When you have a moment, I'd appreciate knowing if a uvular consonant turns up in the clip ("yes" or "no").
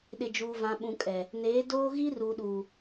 no